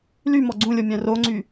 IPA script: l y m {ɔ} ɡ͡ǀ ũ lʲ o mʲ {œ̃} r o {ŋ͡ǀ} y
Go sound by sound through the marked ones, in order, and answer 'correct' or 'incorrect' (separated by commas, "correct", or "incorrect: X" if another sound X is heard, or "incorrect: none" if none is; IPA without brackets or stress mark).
correct, correct, correct